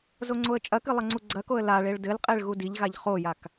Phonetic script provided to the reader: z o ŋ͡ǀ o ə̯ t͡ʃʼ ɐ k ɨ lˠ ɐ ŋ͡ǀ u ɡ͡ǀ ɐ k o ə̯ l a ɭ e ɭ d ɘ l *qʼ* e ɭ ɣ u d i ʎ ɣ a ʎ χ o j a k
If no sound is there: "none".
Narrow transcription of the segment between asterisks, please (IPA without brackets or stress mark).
qʼ